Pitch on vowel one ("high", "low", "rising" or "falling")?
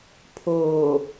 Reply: low